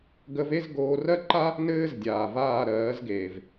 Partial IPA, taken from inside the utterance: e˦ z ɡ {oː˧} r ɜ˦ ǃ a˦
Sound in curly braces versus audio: correct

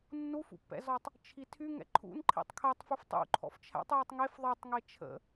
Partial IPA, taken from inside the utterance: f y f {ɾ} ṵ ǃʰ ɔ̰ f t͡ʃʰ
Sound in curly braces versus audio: incorrect: tˤ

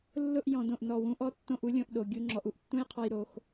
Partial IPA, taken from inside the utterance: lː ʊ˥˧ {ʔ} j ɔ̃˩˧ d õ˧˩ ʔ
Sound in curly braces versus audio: correct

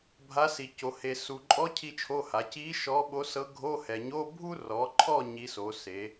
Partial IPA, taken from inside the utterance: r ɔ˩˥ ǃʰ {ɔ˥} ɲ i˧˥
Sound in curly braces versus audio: incorrect: ɔ˥˨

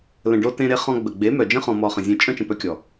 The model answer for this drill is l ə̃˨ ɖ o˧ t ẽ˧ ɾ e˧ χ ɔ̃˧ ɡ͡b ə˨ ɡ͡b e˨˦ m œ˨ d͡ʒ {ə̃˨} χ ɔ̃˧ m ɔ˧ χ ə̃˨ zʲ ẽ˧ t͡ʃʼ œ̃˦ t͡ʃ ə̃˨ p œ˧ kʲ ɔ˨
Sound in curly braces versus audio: incorrect: ə̃˦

